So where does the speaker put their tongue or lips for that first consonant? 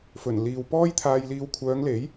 lips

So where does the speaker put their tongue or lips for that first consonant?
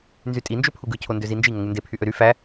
tongue tip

